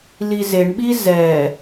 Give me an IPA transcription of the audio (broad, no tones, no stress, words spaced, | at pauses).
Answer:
lizeɳɓi zɛ